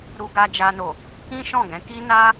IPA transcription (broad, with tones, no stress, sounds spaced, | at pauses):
ɾ u˧ ɡ a˧ d͡ʒ a˧ n o˨ | ĩ˦ ʃ ɔ̃˦˨ ɡ ɛ̃˨˦ k i˦ n a˦